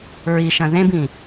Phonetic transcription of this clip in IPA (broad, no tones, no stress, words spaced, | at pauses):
ɹiʃɐ̃ ðẽbĩ